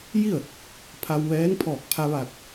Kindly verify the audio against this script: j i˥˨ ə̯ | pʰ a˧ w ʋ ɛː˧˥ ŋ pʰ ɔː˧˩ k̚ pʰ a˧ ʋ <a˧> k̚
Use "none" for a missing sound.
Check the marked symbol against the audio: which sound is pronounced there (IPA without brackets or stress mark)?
a˧˩